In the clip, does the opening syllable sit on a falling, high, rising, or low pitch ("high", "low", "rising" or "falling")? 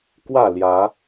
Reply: falling